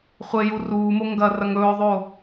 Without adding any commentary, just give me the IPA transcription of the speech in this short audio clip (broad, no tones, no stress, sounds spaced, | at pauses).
χʷ e j u r uː m o ŋ ɡ ɐ r ɐ ŋ ɵː ðˤ o